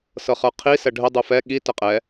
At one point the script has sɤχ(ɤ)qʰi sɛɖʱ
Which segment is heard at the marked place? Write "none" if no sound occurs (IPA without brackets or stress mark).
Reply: ə˞